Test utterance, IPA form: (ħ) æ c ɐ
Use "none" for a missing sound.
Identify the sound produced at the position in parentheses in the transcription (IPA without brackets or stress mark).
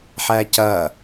ħ